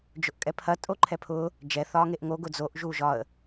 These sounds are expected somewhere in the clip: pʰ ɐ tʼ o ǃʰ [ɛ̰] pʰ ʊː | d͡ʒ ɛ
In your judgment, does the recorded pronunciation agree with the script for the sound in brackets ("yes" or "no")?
no